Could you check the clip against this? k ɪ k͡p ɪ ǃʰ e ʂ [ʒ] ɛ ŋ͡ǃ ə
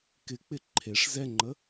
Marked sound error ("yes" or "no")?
yes